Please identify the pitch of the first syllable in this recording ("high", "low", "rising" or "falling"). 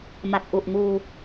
low